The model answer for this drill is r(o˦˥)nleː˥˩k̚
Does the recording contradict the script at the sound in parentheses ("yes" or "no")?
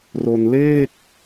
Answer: yes